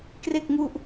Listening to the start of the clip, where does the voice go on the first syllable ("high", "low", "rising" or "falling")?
low